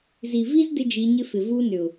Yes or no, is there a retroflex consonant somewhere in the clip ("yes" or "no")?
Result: no